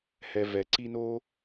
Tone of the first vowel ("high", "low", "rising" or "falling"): low